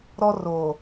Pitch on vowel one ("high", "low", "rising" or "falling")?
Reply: high